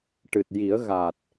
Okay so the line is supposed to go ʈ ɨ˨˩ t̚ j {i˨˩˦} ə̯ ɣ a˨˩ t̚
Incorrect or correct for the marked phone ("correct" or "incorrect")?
correct